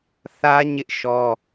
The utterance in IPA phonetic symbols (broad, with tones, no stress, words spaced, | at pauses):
θä˦ɲɪ˦ʔ ʃɔ˦